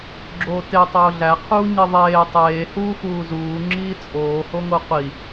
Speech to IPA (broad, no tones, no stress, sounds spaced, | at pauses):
ɡ͡ǁ oː t e tˤ oː ɮ æ qʰ uː ɲ i ðˤ eː tˤ eː h uː x uː z uː ŋ͡ǁ iː t͡sʼ oː h o ŋ o qʷ i